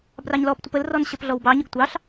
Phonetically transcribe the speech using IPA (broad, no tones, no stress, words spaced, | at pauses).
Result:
brɑɲlɔptʷəp əlrɔn ɕəpɮɔwbɑɲəɡ tʷɑɬ